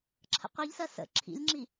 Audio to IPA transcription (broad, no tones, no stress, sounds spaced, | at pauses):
ǁʰ ə̰ qʷ i ʎ s ɜ s ə̰ ǁʰ ḭ lʲ ŋ͡ǁ i